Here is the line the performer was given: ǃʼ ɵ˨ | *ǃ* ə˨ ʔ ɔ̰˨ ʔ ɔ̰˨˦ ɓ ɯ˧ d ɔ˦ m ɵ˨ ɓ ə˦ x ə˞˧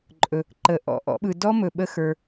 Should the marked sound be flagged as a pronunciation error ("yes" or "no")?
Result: no